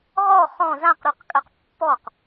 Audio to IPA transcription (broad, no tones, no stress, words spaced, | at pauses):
ʁɔ χɔ̃ zãqɾʉqkʼɜq pːɔq